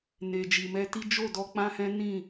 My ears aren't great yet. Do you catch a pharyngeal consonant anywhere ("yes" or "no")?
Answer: no